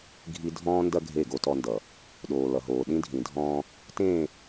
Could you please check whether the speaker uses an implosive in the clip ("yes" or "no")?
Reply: yes